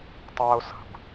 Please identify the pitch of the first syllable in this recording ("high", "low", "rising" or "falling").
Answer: high